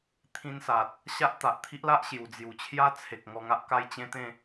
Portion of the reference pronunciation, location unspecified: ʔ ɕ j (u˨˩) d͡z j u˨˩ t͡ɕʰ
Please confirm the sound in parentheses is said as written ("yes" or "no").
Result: yes